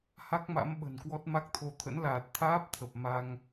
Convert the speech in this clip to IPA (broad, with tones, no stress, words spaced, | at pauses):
ha˦˥k̚ma̰˧˥mɓə̤˨˩nkwɔ˦˥t̚ ma˦˥k̚t̪ʰo˧ t̪ʰə̰˧˥nlaː˨˩t̚ t̪ʰaː˦˥p̚t̪ʰə˨˩p̚ ma˧ŋ